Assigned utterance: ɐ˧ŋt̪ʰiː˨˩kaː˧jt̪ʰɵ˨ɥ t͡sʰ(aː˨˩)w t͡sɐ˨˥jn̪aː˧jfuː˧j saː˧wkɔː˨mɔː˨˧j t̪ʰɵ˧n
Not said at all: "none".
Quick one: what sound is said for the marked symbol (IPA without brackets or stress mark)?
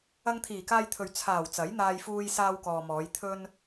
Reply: aː˨˩